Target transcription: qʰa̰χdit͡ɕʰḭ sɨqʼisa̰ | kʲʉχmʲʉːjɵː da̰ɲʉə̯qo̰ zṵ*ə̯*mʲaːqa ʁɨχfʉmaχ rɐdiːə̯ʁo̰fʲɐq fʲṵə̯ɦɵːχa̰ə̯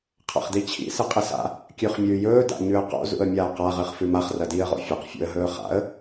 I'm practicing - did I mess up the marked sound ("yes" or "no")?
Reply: no